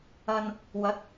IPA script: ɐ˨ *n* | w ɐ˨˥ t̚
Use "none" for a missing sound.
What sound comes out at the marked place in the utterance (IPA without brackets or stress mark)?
n